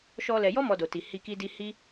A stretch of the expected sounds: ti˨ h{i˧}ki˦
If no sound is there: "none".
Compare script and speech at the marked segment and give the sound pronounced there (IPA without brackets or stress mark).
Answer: i˧